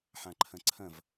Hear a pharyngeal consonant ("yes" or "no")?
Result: yes